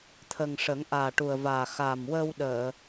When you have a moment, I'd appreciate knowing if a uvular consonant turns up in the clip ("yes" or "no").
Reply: no